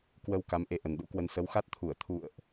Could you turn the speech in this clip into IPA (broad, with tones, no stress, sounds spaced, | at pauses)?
k w ə˧ w k a˨˦ m ʔ e˧ ʔ ə˨˩ n ɗ ṵ˧˥ k w ə˧ n s ə˨˦ w x a˦˥ t̚ t̪ʰ u˧˩ ə̯ t̪ʰ ṵ˧˨ ə̯ ʔ